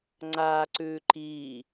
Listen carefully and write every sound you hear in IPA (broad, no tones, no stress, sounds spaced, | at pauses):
ŋ͡ǀ a ǀ ʉ ǃ i